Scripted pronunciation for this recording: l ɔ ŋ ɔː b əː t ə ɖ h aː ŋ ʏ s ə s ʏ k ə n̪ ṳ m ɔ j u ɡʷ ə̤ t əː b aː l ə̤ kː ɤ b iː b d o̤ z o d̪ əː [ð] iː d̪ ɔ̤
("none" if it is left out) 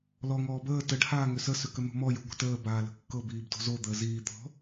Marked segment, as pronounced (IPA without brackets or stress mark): z